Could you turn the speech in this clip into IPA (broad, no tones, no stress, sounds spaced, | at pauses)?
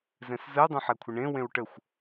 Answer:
z ɛ̃ s z ə ʊ̯ dˤ ẽ ħ ɛ kʷʰ ɪ ɳ ẽ w ẽ w ʈ ə xʷ